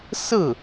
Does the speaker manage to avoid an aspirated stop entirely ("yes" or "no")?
yes